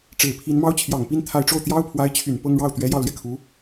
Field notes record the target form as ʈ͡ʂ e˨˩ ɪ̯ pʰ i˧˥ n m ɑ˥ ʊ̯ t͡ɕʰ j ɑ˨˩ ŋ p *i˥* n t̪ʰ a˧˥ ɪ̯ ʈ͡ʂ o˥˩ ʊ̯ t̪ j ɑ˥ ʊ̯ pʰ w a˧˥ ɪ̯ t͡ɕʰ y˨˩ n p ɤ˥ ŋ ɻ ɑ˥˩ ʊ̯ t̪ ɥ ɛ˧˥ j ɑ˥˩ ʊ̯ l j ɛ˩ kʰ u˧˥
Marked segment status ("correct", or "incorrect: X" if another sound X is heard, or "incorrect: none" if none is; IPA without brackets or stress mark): correct